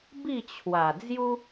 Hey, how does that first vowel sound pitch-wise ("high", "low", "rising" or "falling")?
falling